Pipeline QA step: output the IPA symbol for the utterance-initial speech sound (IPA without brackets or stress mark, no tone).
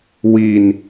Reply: w